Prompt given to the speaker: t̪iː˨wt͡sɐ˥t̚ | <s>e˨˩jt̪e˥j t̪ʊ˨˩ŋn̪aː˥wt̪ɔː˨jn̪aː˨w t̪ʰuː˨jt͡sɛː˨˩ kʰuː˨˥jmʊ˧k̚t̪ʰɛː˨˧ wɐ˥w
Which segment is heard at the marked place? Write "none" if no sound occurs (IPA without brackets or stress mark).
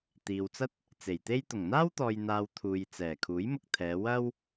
t͡s